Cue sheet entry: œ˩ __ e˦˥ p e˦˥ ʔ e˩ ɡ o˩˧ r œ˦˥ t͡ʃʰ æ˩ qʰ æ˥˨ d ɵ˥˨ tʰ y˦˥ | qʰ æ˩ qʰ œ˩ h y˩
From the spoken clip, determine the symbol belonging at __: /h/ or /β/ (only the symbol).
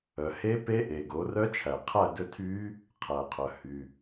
h